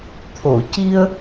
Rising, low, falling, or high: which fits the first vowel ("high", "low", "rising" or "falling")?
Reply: low